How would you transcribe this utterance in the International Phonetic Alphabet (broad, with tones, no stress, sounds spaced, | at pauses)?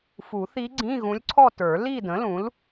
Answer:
f u˨˩˦ θ i˧˥ ɡ͡ǀ ĩ˧˥˧ ɣ ũ˧˥ lʲ ǀʰ ɔ˥˧ t ə˞˨˩˦ l i˥˧ d ə̃˩˥ l ũ˩˥ l